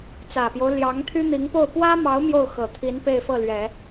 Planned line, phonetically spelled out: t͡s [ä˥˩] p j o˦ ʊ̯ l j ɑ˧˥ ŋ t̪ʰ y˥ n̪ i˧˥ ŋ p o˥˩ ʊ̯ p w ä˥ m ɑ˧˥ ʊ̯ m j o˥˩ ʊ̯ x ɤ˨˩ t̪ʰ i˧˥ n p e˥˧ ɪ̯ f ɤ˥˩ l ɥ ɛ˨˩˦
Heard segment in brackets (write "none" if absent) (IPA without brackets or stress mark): ä˨˩